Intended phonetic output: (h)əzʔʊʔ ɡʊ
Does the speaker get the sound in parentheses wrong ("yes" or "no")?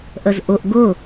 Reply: yes